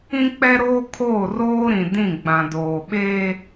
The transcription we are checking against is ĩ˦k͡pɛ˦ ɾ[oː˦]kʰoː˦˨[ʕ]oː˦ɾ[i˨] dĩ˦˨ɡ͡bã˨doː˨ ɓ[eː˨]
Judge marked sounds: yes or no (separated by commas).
yes, no, no, no